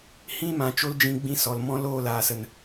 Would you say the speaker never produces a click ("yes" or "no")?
yes